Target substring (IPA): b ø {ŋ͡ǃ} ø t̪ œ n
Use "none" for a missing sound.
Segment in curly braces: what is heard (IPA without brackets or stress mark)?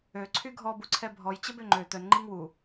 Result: ŋ͡ǃ